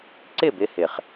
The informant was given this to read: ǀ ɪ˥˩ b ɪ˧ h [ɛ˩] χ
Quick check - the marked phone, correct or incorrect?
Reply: incorrect